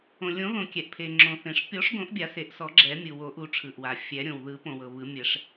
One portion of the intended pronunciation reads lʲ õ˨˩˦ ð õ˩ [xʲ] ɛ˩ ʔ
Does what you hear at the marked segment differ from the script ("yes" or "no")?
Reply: yes